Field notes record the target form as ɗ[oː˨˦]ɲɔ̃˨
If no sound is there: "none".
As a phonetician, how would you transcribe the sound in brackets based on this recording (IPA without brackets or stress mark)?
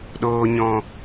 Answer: oː˨